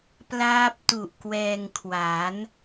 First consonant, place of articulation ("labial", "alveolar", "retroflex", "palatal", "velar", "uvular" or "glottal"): labial